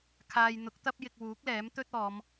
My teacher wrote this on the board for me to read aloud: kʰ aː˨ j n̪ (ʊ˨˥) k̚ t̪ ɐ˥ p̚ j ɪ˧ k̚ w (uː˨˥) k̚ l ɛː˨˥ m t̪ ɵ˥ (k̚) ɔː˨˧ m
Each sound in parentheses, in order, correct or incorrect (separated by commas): correct, correct, incorrect